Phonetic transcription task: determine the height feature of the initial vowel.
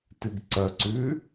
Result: high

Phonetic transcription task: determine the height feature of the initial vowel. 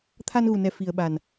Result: low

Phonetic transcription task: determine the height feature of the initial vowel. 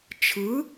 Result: high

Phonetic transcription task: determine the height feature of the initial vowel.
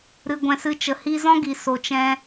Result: high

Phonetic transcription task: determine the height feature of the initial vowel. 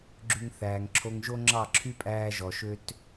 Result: high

